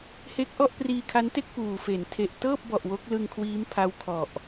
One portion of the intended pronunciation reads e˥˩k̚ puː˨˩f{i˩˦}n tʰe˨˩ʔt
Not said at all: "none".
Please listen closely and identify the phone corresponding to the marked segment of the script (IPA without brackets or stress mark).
e˩˦